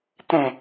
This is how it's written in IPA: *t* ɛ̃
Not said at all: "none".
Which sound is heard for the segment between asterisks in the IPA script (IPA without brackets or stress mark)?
t